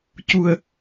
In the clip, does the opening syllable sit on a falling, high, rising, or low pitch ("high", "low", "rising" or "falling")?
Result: low